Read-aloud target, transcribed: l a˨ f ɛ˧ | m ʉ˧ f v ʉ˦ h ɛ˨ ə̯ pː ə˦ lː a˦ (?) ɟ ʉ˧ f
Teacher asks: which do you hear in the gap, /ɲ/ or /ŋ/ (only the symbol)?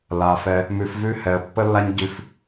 ɲ